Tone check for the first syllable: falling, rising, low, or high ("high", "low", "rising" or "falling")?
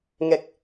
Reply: low